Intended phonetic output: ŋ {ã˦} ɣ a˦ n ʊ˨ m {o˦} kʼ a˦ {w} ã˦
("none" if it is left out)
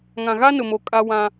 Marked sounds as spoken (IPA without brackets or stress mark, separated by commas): ã˨, o˨, w